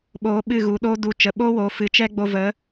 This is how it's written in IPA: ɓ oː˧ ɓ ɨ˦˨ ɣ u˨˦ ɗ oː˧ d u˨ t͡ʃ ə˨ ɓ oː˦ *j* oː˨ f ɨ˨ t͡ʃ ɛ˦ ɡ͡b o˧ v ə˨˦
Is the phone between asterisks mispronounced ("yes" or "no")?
yes